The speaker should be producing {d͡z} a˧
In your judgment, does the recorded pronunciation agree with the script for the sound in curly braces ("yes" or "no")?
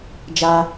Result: no